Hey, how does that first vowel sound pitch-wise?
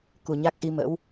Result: low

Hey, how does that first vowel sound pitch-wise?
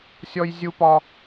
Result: high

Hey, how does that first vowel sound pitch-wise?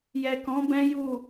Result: low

